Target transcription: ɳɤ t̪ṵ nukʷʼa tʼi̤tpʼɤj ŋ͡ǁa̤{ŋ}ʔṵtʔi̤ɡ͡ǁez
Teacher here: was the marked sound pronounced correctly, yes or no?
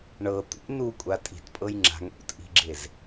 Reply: yes